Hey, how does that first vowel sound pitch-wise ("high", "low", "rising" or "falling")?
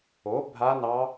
rising